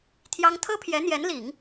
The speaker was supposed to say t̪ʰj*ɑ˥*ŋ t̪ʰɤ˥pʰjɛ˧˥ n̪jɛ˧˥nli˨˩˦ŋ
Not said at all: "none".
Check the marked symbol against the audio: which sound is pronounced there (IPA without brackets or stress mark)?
ɑ˥